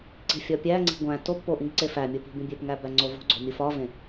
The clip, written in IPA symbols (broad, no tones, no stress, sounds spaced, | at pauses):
ǀ i̤ fʲ ɒ pʲ æ ŋ͡ǀ i̤ ɡʷ æ̃ t o b p o ʔ ĩ ɡ ǀ e f æ mʲ o p i̤ b ĩ bʲ e p ŋ æ b æ ŋ͡ǀ o v o̤ ɡ͡ǀ o̤ mʲ u f ɒ v ẽ